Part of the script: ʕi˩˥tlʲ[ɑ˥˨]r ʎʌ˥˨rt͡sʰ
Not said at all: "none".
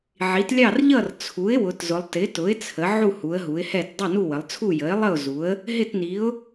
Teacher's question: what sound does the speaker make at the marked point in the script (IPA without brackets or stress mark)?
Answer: ɑ˥˨